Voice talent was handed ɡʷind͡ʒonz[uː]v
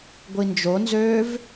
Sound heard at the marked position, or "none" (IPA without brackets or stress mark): øː